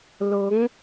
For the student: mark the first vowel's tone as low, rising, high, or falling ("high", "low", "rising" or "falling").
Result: rising